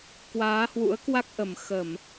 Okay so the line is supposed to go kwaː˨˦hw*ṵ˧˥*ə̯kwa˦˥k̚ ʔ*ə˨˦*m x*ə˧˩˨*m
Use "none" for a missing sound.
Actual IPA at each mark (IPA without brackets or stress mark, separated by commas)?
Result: ṵ˧˥, ə˨˩, ə˧˩˨